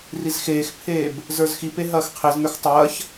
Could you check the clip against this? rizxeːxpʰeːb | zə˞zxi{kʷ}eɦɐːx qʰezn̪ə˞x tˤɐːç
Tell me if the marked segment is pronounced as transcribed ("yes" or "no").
no